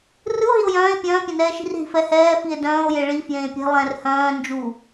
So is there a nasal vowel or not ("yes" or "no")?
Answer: yes